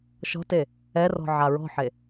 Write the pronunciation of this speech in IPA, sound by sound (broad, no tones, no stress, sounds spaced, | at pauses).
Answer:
ʃ ɔ̤ t e | ɛ r ɔ̤ ʕ a ɹ ɔ̤ ħ e